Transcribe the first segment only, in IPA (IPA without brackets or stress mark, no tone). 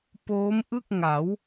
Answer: p